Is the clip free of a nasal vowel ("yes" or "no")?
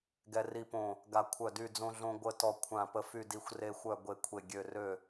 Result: no